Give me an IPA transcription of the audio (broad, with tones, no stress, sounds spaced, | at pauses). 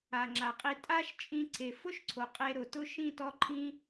a˨ ŋ͡ǁ a˨ qʼ i˧ tʼ a˦ ʃ t͡ʃʼ ĩ˧ ǀʰ e˨ f ʊ˦ ʃ ǀʰ o˨ qʼ e˧ ɾ ʊ˨ t ʊ˦ ʃ ĩ˦˨ t ɔ˧ ǃʰ ĩ˧